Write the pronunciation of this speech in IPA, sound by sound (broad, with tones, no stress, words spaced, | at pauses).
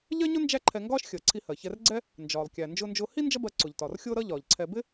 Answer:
ʎɜ˥ɲʊ˥ nd͡ʒæ˥ǃʰɛ˧ŋɡɒː˥ʃ xʲəː˩ ǀʰi˧hɜ˩çɛ˧rɡ͡ǀɛ˥ | nd͡ʒɒː˩lˠkʲæ˩ nd͡ʒʊː˧nd͡ʒʊː˧hi˥ nd͡ʒʌ˥bɜ˧ǀʊ˩ʎtɒ˩r xʲʊː˥ɾʌ˥ ʎɒː˩ʎǀʰɛ˧ bɪ˥